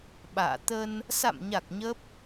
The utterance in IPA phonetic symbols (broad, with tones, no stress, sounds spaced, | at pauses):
ɓ a̰ː˧˨ t̪ ə˧ n | s a̰˧˨ m ɲ a˨˩ k̚ ɲ ə˦˥ p̚